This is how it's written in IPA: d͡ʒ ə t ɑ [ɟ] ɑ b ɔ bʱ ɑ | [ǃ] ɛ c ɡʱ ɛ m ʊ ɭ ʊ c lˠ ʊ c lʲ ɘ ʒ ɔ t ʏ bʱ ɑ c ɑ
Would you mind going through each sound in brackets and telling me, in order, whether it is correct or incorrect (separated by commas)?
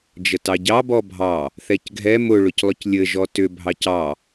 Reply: correct, incorrect